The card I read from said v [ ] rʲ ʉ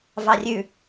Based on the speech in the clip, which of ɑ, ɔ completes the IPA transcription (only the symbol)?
ɑ